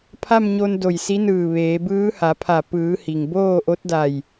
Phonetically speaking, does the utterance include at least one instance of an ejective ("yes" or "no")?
no